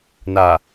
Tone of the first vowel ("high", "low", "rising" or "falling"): low